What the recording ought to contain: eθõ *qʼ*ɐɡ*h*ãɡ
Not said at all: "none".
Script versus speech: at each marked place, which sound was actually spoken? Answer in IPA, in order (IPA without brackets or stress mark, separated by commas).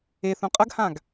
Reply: qʼ, h